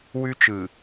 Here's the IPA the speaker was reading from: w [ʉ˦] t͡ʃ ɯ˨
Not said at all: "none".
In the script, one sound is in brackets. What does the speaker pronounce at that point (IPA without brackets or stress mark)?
ʉ˦